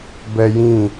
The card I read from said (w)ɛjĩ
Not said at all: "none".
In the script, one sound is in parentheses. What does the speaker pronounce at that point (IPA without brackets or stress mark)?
b